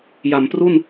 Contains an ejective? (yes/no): no